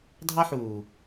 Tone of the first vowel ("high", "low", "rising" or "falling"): high